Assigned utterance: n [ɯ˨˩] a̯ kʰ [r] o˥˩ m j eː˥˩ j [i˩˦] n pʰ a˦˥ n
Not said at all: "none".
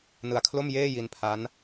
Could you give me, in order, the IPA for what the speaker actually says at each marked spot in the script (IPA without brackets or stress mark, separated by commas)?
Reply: ɯ˨˩, l, i˧